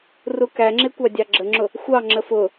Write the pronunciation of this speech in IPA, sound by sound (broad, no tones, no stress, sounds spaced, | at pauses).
r u k æ ŋ͡ǁ ɪ kʷ ɑ dʲ ɑ ɡ͡ǁ ə ŋ͡ǁ ʊ | xʷ ɑ ŋ͡ǁ ə f ʊ